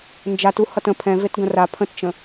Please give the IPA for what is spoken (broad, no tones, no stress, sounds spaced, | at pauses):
n d͡ʒ a t u h ʌ t ə̃ pʰ ɛ̃ v e t ɡ ə̃ r a pʰ ə̃ t t͡ʃ ə̃